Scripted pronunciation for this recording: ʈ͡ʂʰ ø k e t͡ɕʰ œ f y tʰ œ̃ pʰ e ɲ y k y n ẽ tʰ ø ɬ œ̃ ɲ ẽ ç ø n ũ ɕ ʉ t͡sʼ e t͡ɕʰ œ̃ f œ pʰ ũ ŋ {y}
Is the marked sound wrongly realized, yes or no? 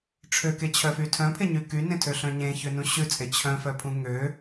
yes